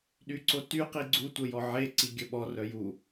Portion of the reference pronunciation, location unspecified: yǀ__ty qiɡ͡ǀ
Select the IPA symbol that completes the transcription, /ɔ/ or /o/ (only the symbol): o